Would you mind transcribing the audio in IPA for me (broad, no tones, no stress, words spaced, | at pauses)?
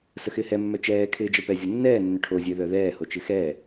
səxɪːhɛmːœ t͡ʃɛːkʰɪːd͡ʒəpɛ zʲənːɛː nːʏʈʰozʲø ðœðɛːhot͡ʃɪ xɛː